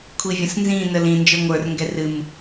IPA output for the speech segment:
kʷʰ i vʲ ə̃ s n z ĩ n ə l ĩ n d͡ʒ ə˞ ŋʷ ə˞ r ŋ ɡ ɛ r ɨ m

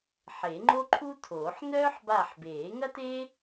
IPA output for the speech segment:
ħ e˨˩˦ ŋ͡ǃ o˥ ǃʰ u˥ tʰ oː˨˩˦ ħ n œː˥ ħ b a˦˨ ħ b eː˨˩˦ ŋ ɐ˥ t eː˥

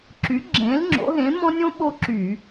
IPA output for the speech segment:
ǁ y˨˥ ɡ͡ǁ ẽ˨˥ l ŋ͡ǁ o̰˨˥ ɦ ẽ˨˥ m ɔ̃˥ nʲ õ˥ ɓ o˥ ǁ y˧˩˧

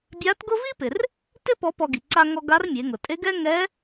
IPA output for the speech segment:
bʲ a˧˥ t ɡ ʊ˥ v i˥ p ɪ˩ r | t ɪ˥ p ɔ˧˥ p ɔ˧ ɡ i˩ ǀ a˧ ŋ ɔ˧ ɡ a˧˥ r mʲ e˩˧ ŋ ʊ˩ tʼ e˧˥ ɡ ɛ˥ ŋ ɛ˧˥

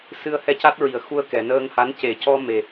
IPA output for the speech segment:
s ɨ˧ ə̯ h ɛ˧ c a˦˥ t̚ ɹ i˨˩ ə̯ x u˧ ə̯ k ɛ˨˩˨ n əː˧ ŋ h a˧˥ n c e˨˩˦ c ɔ˧ m e˨˩

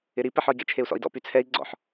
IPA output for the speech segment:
ɪ ɾ i p ɛ ħ ɔ i̯ ɡ ɛ̰ t͡ʃʰ e u̯ s ɔ̰ i̯ d ɔ̰ p y t͡sʰ ɛ i̯ ɡ͡ǀ ɔ̰ ħ

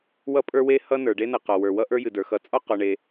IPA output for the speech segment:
w ʌ˥ pʼ ə˞˥ w e˥ h ʌ˥ n ə˞˩ ɖ e˥ n ʌ˩ q ɒ˩ w ə˞˩ w ʌ˥ ʔ ə˞˥ j ɨ˩ d ə˞˩ x ʌ˩ t͡sʼ ɒ˥ q ɔ˩ ɳ e˩

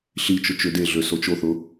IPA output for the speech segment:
ɬ i t͡ʃ ʊ t͡ʃ ø d e ɮ ø s o t͡ʃ o θ ʊ

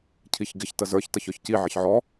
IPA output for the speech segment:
cʰ i ç ɡ ɪ ç t ə z ə˞ ç t ʌ ç ɔ ç c i ʕ ɪ ç ʕ ɔ

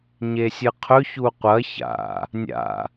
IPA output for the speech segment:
ɲ e sʲ ɨ qʰ ɵ ç u qʷ ɐ ç a̰ | nʲ a̰

